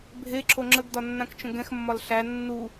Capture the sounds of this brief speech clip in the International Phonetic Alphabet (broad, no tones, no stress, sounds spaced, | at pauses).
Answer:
bʱ e ǁ o ŋ͡ǁ ə ɡ d ɒ nː ã k t͡ʃ ə̃ ɡ ɛ̃ x mː ɒ l ɬ æ nː u